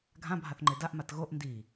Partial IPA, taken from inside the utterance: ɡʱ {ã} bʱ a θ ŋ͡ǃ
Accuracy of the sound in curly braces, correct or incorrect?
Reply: correct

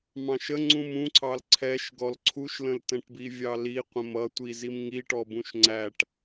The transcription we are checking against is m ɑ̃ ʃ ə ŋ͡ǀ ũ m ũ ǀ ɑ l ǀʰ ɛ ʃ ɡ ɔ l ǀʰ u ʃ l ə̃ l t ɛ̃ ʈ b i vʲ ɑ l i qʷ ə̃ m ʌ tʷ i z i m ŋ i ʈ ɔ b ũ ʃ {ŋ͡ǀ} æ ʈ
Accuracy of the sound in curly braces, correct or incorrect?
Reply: correct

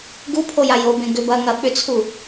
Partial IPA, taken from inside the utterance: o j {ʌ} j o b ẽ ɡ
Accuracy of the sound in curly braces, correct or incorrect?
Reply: incorrect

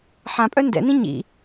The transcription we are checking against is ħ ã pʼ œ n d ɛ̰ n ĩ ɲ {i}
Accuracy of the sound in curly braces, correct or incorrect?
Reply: incorrect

